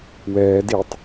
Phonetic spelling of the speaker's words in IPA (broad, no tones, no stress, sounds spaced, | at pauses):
w ɛː d i tˤ